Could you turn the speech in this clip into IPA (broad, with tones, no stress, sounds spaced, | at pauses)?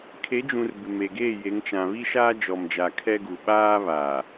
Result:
kʰ e˨˦ d͡ʒ ũ˨ r b ɪ˨ m e˨ ɡ eː˦˨ j e˨˦ ŋ t͡ʃ ã˨ β i˦ ʃ aː˦ d͡ʒ ɔ˨ m d͡ʒ a˨ kʰ ɛ˦ ɡ u˨ ɓ aː˦ β aː˨